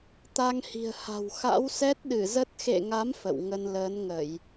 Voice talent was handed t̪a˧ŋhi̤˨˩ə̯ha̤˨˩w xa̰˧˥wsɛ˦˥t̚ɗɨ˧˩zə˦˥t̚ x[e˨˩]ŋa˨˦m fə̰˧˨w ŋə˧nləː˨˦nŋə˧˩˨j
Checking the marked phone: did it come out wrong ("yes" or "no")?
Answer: yes